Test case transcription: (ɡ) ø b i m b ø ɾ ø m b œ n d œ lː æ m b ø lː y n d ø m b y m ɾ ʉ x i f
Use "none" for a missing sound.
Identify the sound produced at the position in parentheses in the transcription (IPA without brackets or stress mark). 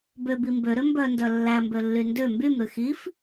b